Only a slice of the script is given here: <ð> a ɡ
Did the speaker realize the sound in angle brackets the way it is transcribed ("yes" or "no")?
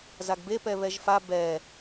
no